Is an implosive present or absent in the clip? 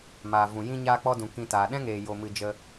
present